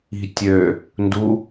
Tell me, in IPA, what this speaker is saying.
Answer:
i̤ tʲ ø | n d u

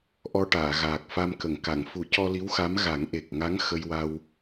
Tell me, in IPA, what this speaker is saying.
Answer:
ʔ ɔ˧ ʈ aː˨˩˨ ɣ aː˨˩ k̚ f a˧ m k ə˨˩˨ ŋ k a˨˩˨ ŋ f u˨˩˦ c ɔ˧ l i˧˥ w x a˧˥ m ɣ a˨˩˦ ŋ ʔ e˨˩ k̚ ŋ a˧˥ ŋ x ə˧ j w a˧ w

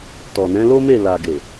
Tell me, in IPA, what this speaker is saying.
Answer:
t ɔ˨ n ɛ̃˨˦ l o˦ m e˦˨ l a˨ ɡ e˨

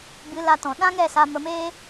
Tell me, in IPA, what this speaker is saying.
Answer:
b ɨ˨˦ l a˧ t ɔ̃˨ ɗ ã˦ ŋ ɛ˦˨ s a˧ m ə˧ m eː˦

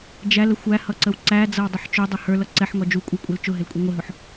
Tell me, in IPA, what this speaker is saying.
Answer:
d͡ʒ æ l ə xʷ æ h ʌ ǀ ə w ǀ æ d͡z ʌ w dˤ ə ħ t͡ʃ ʊ dˤ ʊ h ə˞ l ʌ ǀ ɛ ħ ŋ ɔ d͡ʒ u kʷʼ ə˞ kʷʼ ɛ l t͡ʃ ʊ ɦ ɪ l kʷʼ ʌ ŋʷ ɪ ɦ ʊ ħ

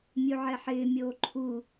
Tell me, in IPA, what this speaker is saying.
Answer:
mʲ u ʕ ɛ ħ ɪː mʲ oː ǃʰ u

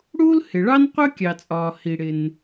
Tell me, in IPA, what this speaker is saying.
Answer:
ɽ uː˥ l h ɪ˩ ɭ ɑ˥ n qʷ ɜ˥ kʲ ɑ˩ t͡sʼ ɒː˩ h i˩ ɽ ɪ˩ n

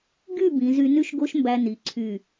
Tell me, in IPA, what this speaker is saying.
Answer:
ɡ y˥˧ b ĩ˩˧ z y˧ n y˥ ʃ ɡ o˥ ʃ m b æ˧ n i˩˧ ǀʰ y˧˩

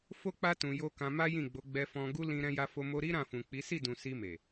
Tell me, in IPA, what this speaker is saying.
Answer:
f o˦ k͡p a˦ t ũ˧ j o˦ k ã˧ m a˦ j ĩ˦˨ ɡ͡b o˨˦ ɡ͡b ɛ˧ f ɔ̃˧ ɡ u˦ l ĩ˧ ɾ ɛ̃˧ j a˧ f o˧ m o˧ ɾ i˦ ɾ ã˦˨ f ũ˨ k͡p i˨˦ s i˦˨ d ũ˨ s i˧ m e˨

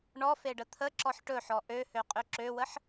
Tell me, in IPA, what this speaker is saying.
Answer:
ɳ ɔ f e ɖ ə t̪ʰ ə ǁ ɔ ħ ʈ ɵ ħ ɔ ʔ ø h ø qʼ ø ǁ ø w ə ħ

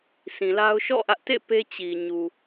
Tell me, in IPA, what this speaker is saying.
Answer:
s ĩ˨ l a˦ ʊ̯ ʃ ɔ̰˦˨ ʔ ä˦ ʔ t ḛ˦˨ p e˦ t͡ɕ i˨ ɲ u˨

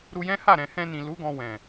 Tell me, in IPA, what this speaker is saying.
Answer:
ɾ u˧ j ɛ̃˦ h a˦˨ ɾ ɛ̃˨ h ɛ̃˧ n ĩ˨ l u˨˦ ɡ ɔ̃˧ w ɛ̃˨

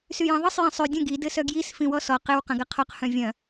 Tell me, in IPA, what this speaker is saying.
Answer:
s y j ɐ̃ ðˤ ə sˤ j ɐ̃ sˤ y dʲ ə̃ ɡ i d ɘ s œ ɡ j i s f ĩ w ɔ s ɔ q ɘ w q ɐ̃ ɡ ɐ qʰ ɔ q h œ̃ vʲ ɐ̃

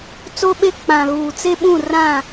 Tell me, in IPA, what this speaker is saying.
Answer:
t͡s o˦ ɓ e˦ k͡p ã˨ ɣ uː˨ t͡s e˦ ɓ ũ˦˨ r ã˦˨

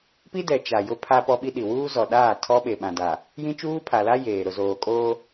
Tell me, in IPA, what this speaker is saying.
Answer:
p i˦ d ɛ˨ t͡ʃ a˨ j ʊ˦ pʰ a˦ p ɔ˦ ɓ i˦ ɗ i˨ w uː˦ z ɔ˨ ɗ aː˦˨ tʰ ɔ˦ ɓ e˨ ɓ ã˨ d a˨ | j ĩ˦ t͡ʃ uː˦ pʰ a˨ l a˦ j eː˨ ɾ ʊ˨ z oː˨ kʼ oː˦

